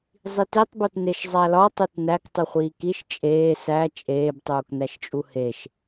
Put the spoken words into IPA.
zˤ i t i tˤ b o t n e ʃ zˤ æ l ɒ tˤ u t n æ k tˤ u χʷ iː k i ʃ t͡ʃʼ eː s æ t͡ʃʼ eː b tˤ uː k n æ ʃ t͡ʃʼ u h e ʃ

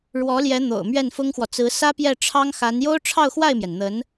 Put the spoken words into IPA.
ɻ w ɔ˧˥ l j ɛ˧˥ n̪ o̰˨˩ ʊ̯ m ɥ ɛ˥˩ n f ʊ˥ ŋ x w ɔ˨ t͡s ɹ̩˧˥ s ä˥ p j ɛ˥˩ ʈ͡ʂʰ ɑ˥ ŋ x a˧˥ n j o˥ ʊ̯ ʈ͡ʂʰ ɑ˥˧ ʊ̯ x w a˥˩ ɪ̯ m j ɛ˩ n n̪ ə˧˥ n

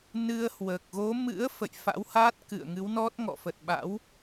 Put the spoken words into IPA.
n ɨ˧ ə̯ h w əː˨˩ k̚ ɣ o˨˦ m ɨ̰˧˥ ə̯ f ə̰˧˨ j f a̰˧˥ w h aː˦˥ t̚ k ɨ̰˧˨ ə̯ ŋ ɨ˨˦ w n ɔ˦˥ t̚ ŋ ɔ̰˧˨ f ə˨˩ t̚ ɓ a̰˧˥ w

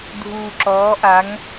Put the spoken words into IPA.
dʱ uː˨ ǁ ɔː˨˦ ʔ a˨˦ ŋ

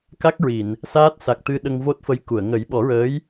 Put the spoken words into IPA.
k a˦˥ k̚ ɹ i˨˩˨ n | s aː˦˥ t̚ s a˨˩ k̚ t̪ ɨ˧ ɗ ə˧ ŋ v o˦˥ t̚ f ə˧˥ j k u˨˩˨ ə̯ ŋ ə˨˩˦ j ɓ ɔ˨˩˦ ɹ əː˧˥ j

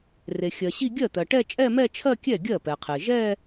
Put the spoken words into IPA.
r e˩ xʲ ɜ˩ ɕ i˥˧ ɡʲ ɜ˥˩ t̪ ɜ˩ ʈ ɛ˥˧ t͡ʃʼ ɛ˥˧ m ɛ˥˧ t͡ʃʰ ɜ˥˧ kʲ ɛ˥˩ ɡʲ ɜ˥˩ p ɛ˩ qʰ e˩ ʒ ɛ˥˧

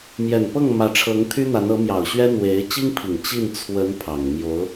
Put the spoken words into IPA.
m j ɛ˨˩ n p ɤ˥˩ ŋ m ä˧˥ ʈ͡ʂʰ ɤ˧˥ ŋ t̪ʰ y˥ n̪ a˧˥ n ɤ˧˥ m j ɑ˨˩ ʊ̯ ɕ ɥ ɛ˥ n̪ w e˧˥ ɪ̯ t͡ɕ i˥ ŋ pʰ i˨˩ ŋ t͡ɕ i˥˩ n t͡sʰ w ə˧˥ n pʰ ɑ˨˩ ŋ m j o˧˥ ʊ̯

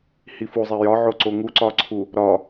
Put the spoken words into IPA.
h i f u zˤ e j ɒ ʕ o ǀ o ŋ u ǀ ɒ ǀʰ u | ɾ ɒ

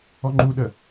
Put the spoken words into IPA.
ɔ ŋ͡ǃ u ɗ ə

